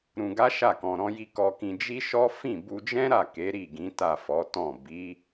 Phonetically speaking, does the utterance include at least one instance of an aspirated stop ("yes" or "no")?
no